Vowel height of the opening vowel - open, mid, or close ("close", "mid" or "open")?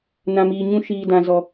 open